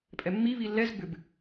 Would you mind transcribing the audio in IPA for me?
pʼ ɛ mː i β i lː ɛ z b ʏ b

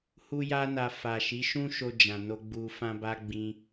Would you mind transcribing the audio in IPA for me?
h u˦ j a˦ n a˧ f a˨ ʃ i˨˦ ʃ ũ˦ ʃ o˧ d͡ʒ ã˨ n o˧ ɡ͡b u˧ f ã˦ b a˦ ɡ͡b ĩ˧

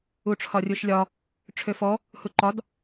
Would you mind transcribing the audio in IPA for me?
u ʈ͡ʂʰ ɒ rʲ u ʃ lʲ ɒ | ʈ͡ʂʰ ø f ɔ | h u ǃ ɒ d

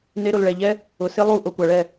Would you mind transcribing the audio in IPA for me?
n e˧ ɾ ʊ˨ l ɭ ɛ˨ ʎ ɛ˦ | ʊ˨ s ɪ˦ lˠ u˦˨ ʔ o˧ kʷ a˨ ɭ ɛ˦˨

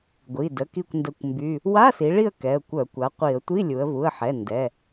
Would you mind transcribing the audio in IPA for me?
ɡʷ i˩˧˩ d ə˩˧˩ k i˦˨ kʷ n d ə˦˨ kʷ m b y˧˥˧ | w a˧˥˧ s i˩˧ ɭ i˦˨ ə̯ k ɛ˩˧˩ ə̯ kʷ œ˧˩˧ kʷ a˩˥ qʷ i˧˩˧ ə̯ tʷ i˧˥˧ lʲ u˩˧ ə̯ v u˩˧˩ ə̯ ħ ɛ˩˧˩ n d ɛ˩˧˩

